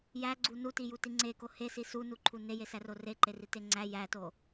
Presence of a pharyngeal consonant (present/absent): absent